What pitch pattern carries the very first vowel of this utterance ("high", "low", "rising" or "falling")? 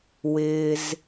low